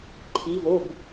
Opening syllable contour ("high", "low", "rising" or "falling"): rising